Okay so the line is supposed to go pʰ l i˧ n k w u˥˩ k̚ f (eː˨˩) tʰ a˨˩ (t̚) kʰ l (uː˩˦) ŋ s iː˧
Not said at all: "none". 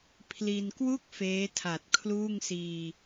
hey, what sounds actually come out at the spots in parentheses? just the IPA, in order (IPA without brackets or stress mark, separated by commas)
eː˦˥, t̚, uː˥˩